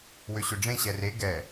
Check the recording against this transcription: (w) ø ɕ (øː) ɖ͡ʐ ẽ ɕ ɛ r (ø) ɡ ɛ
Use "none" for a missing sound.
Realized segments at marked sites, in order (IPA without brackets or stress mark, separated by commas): w, ø, e